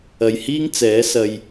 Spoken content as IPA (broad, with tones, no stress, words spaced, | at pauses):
ɐ˨jhiː˥ŋ t͡sɛː˨˥sɐ˧j